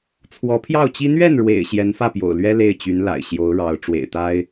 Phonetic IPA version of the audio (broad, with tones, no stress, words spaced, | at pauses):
t͡sʰwɔ˧˥pʰjɑ˥˩ʊ̯t͡ɕi˥ n̪ɥɛ˥˩nɻwḛ˨˩ɪ̯ ɕjɛ˧˥nfä˥˩pjo̰˨˩ʊ̯lɥɛ˥ le˥˩ɪ̯t͡ɕy˧˥nla̰˨˩ɪ̯ ɕjo˧˥ʊ̯ɻɑ˧˥ʊ̯ ʈ͡ʂwḛ˨˩ɪ̯t̪a˥ɪ̯